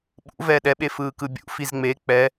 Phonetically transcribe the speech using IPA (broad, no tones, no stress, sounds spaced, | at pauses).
ɓ ṵ v ɛː ɗ ɛ ɓ e f ɯː k ɯ bʲ ṵ f i z ŋ͡m e k͡p ɛ